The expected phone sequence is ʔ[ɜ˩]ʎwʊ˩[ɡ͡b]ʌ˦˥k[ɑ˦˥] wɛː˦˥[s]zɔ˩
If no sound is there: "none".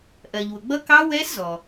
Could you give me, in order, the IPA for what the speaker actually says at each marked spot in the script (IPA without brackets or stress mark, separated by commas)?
ɜ˩, ɡ͡b, ɑ˦˥, s